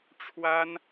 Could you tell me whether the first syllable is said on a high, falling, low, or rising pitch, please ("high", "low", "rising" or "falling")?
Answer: high